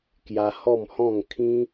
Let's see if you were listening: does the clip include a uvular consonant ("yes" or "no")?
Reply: no